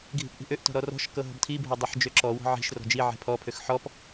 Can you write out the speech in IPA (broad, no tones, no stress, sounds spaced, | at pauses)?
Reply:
ɡʱ i̤ p ʔ i̤ ʔ ø ʔ t ɔ̤ ɾ ɔ r ɔ̤ ʃ k ɤ ɦ ɔ̤ b tʰ i bʱ ɤ dˤ ɤ ħ d͡ʒ ø ǁ ɔ w ɔ̤ ʕ i̤ ʃ r ɔ̤ d͡ʒ i ʕ ɛ̤ pʰ ɔ pʰ ø x ħ ɔ p